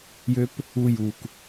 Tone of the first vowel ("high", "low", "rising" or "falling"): high